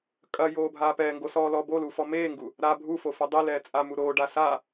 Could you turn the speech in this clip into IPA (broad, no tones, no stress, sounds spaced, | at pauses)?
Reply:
kʼ ɐ j oː bʱ aː p ɛː ŋ ɡ o s ɔː l ɔ b o l u f ɔ m eː ŋ ɡ u | ɾ a bʱ u f o f ɔ dˤ i l ɛː t͡sʼ a m u ɾ oː ɖ a s a